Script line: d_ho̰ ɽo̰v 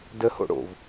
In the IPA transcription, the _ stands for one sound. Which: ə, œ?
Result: ə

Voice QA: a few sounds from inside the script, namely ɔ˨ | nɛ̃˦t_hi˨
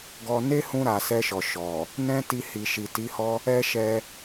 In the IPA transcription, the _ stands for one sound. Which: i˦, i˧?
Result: i˧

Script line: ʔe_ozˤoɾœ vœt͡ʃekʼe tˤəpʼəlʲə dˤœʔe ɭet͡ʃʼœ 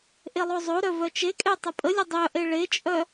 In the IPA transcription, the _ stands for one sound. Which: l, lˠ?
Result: lˠ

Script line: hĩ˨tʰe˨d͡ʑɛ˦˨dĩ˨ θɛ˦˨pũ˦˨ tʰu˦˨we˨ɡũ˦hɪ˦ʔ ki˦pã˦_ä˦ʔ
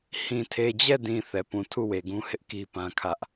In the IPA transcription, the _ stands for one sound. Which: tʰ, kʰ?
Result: kʰ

